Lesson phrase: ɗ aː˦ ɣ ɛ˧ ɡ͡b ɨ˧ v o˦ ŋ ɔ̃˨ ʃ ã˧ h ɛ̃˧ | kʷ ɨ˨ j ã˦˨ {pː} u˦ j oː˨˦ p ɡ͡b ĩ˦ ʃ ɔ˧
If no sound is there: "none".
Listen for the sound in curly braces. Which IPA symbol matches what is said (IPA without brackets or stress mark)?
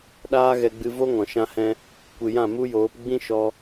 m